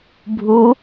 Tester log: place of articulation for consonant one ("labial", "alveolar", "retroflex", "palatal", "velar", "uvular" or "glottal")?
labial